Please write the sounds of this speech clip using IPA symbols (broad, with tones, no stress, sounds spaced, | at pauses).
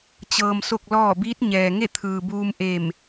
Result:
t͡ɕ ɤː˧ m s o˥˨ k̚ l ɔː˥˨ b iː˧˥ t̚ ɲ ɛː˩ ŋ e˥˨ t̪ʰ ɯː˩ b uː˧ m ʔ e˧˩ m